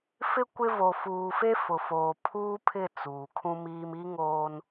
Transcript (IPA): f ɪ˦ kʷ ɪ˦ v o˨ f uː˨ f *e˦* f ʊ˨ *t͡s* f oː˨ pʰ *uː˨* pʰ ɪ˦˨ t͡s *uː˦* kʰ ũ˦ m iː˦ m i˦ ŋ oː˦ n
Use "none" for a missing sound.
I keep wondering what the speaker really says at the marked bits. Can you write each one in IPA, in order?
e˦, none, uː˦, uː˨

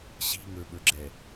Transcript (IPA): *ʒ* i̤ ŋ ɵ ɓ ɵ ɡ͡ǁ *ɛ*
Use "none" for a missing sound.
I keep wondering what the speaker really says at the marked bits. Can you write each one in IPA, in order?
ɕ, ɛ

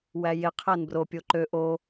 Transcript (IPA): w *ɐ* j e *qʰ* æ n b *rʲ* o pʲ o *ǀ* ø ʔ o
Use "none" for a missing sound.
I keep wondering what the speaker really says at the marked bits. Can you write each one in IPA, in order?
æ, qʰ, r, ǃ

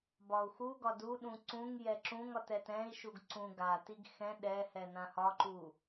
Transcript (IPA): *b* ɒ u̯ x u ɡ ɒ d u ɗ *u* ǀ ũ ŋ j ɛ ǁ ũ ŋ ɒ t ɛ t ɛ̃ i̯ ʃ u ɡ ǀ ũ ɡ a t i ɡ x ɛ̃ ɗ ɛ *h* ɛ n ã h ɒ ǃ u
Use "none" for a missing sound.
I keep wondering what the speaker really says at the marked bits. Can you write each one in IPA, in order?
b, ũ, h

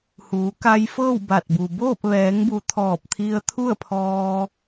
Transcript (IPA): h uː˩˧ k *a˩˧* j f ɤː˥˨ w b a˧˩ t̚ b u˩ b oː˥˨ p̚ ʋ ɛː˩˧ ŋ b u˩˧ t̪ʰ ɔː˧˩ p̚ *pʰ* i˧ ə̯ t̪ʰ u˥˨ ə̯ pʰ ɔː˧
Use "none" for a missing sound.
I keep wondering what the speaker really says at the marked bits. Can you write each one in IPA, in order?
a˧, t̪ʰ

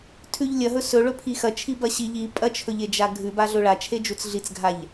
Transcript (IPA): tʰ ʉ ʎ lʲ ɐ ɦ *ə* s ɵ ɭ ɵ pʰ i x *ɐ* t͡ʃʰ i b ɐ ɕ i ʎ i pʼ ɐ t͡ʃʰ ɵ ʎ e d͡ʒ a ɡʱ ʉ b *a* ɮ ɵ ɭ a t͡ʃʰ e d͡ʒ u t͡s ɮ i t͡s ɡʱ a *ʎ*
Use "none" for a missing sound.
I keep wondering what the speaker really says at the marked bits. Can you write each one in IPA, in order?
ɵ, ɐ, a, ʎ

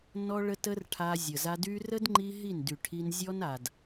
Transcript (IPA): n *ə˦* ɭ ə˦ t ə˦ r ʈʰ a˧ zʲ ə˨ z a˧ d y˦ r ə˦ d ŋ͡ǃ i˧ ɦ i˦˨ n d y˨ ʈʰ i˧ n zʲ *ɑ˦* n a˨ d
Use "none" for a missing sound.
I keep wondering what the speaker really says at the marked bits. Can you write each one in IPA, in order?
ɔ˦, ɔ˦

